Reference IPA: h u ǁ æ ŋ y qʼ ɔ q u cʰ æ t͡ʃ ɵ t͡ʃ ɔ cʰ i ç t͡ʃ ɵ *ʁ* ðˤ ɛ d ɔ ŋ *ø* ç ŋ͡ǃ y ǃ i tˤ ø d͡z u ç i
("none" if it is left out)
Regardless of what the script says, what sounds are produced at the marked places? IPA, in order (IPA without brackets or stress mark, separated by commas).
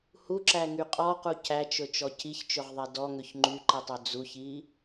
ʁ, ø